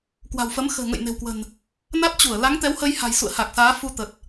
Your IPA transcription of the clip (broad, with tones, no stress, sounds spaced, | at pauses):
k w a̤˨˩ w f ə˨˦ m x ə̤ː˨˩ ŋ ə̰˧˨ j n e̤˨˩ w k w ə̤˨˩ n | n a˦˥ t̚ t͡ɕ u˧˩ ə̯ l a˨˦ ŋ t̪ ɛ˨˦ w h ə˧ j h a̤˨˩ j s ṵ˧˨ ə̯ h a˨˩ k̚ s aː˨˦ f u˧ t̪ ə˨˩ t̚